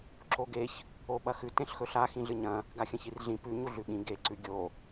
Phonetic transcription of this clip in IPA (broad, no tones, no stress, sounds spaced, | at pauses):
ǁ o ɡ e ç | o ɓ ɐ x ʉ t ẽ ɬ x ɵ ɬ a x ĩ ɮ ɨ ɲ ɐ̃ | ɡ a xʲ ɐ̃ ç i r ɮ ĩ p ʉ ɲ u ɮ ʉ ɠ ĩ ɡ e ǀ ʉ ɡʲ o